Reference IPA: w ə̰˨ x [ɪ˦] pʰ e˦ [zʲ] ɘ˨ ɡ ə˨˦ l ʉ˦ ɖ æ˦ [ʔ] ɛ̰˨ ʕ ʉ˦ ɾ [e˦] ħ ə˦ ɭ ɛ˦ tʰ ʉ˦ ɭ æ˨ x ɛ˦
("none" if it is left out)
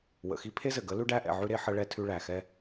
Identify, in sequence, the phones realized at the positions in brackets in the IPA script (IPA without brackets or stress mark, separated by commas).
i˦, z, ʔ, e˦